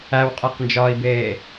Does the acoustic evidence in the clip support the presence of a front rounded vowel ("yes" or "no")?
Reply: no